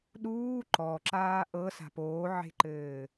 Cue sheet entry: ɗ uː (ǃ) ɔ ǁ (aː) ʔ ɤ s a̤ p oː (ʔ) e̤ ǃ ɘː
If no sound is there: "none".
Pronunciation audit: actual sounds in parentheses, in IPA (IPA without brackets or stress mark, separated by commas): ǃ, aː, ʕ